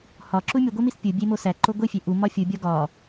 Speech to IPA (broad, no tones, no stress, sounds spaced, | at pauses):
h ɒ ǁ u mʲ u ɡʷ e m i s pʲ u bʲ e m o s æ ǃ o ɡʷ i fʲ e ʔ u m ɒ fʲ u bʲ ɒ ɡ ɒ